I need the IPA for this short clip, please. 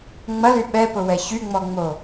ŋ͡m ɐ l y ɓ ɛ p ʊ w ɛ ç y ŋ͡m ɔ ŋ͡m o

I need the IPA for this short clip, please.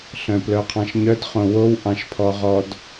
ɬ œ̃ p l œ qʰ ɑ̃ ʃ ɲ œ d χ õ w o w ʔ ɑ̃ ʃ pʰ ɔ ʁ ɔ d

